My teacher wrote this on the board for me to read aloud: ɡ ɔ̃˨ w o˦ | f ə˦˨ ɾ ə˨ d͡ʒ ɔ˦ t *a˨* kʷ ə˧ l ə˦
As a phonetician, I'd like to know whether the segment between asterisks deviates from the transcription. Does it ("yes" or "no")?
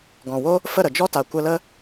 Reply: no